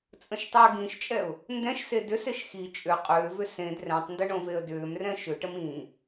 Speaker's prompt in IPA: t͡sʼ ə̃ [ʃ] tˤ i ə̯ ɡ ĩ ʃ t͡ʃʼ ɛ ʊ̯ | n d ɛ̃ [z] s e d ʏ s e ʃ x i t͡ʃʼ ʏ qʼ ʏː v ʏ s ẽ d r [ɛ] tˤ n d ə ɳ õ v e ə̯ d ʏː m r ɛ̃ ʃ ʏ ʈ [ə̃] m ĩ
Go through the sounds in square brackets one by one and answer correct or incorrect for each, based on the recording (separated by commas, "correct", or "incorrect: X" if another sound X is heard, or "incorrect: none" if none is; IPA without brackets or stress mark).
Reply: correct, incorrect: ʃ, incorrect: ɛ̃, incorrect: ə